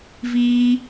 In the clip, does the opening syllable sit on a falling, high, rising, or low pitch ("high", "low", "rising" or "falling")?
high